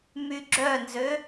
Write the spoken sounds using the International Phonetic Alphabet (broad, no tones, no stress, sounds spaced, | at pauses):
m y ɡ͡ǁ œ n z ø